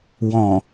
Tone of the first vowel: low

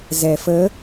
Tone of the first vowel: low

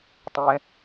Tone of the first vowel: low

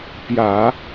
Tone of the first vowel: low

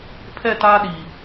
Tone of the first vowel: falling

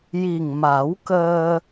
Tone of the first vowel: low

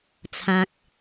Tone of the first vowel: low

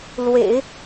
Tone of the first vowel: low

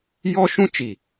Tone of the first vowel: high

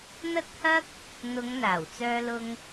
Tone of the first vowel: high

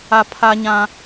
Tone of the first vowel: high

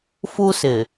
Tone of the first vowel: high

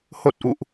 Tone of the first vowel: low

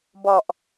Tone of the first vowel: low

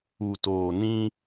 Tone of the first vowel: low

